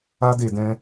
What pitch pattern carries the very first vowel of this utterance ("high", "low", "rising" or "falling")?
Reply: high